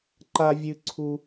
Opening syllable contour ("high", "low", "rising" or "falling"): high